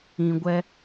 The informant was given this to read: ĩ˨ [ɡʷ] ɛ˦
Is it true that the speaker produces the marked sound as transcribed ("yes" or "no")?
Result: yes